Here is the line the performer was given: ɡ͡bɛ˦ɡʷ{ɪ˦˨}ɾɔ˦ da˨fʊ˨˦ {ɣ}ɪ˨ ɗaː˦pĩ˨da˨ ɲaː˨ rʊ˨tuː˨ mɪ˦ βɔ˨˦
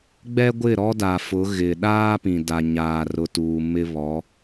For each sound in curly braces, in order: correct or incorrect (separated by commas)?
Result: correct, correct